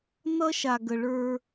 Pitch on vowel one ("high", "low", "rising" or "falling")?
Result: high